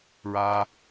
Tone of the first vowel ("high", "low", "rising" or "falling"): high